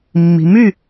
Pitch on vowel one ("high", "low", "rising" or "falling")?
low